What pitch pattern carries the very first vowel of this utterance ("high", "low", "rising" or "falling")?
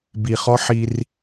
low